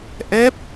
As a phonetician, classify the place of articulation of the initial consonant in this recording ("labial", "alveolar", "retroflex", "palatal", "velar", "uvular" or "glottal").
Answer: glottal